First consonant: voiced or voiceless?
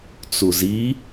voiceless